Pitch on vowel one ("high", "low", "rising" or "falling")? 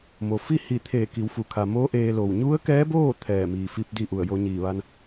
low